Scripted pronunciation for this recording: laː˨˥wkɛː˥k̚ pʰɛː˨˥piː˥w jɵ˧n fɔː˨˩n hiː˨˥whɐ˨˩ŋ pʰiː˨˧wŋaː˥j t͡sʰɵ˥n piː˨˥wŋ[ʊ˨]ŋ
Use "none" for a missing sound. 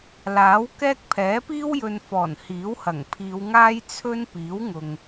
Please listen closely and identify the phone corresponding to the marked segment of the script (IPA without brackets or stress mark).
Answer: ʊ˨